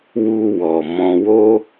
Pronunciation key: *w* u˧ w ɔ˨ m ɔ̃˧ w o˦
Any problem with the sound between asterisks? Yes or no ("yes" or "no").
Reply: no